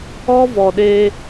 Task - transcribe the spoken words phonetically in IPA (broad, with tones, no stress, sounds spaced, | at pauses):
ɔ˦ v ɔ˨ ɗ e˧